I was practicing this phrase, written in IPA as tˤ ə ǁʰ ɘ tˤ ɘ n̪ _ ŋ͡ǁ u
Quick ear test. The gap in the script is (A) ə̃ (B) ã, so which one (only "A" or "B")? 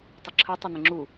A